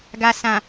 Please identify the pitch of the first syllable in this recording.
low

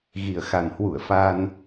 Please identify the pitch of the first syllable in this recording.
low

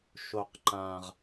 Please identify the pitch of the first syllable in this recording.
low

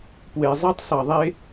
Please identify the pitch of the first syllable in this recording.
low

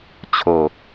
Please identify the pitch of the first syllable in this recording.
low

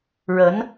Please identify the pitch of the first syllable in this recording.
rising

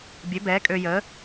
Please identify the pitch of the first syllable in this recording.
rising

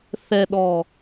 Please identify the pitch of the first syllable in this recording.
low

